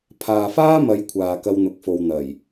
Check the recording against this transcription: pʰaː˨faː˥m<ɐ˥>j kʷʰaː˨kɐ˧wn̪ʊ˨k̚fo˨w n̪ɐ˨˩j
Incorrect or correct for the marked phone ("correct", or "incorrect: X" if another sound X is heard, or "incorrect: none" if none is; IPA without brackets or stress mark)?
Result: incorrect: ɐ˨˧